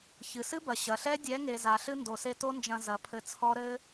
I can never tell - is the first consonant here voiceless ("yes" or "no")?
yes